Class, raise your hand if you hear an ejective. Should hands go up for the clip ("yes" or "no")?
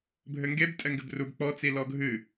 yes